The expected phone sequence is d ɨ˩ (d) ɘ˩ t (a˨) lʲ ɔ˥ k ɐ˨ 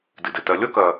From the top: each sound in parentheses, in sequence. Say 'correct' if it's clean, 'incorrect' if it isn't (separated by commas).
correct, incorrect